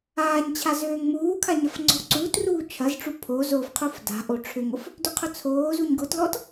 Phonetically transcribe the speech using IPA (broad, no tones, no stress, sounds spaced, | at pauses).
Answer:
aː ɲ t͡ɕʰ a z øː ŋ m uː kʰ a ɲ ɐ f ŋ͡ǀ ɔ̤ ǀ uː t r uː t͡ʃʰ ɐ z ʈ͡ʂ u pʰ o z o f qʰ u f d a̤ ʔ o ʈ͡ʂʰ ʏ ŋ ʊ f | d ʏ qʰ ʊ t͡sʰ oː z u ɲ ɡ ʊ t l ɔ t